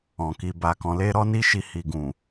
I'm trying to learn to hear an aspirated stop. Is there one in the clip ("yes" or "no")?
no